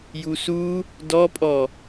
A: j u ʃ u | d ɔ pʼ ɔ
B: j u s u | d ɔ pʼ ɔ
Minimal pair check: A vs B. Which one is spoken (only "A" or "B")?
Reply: B